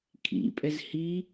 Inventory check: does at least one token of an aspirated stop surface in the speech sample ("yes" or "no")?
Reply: yes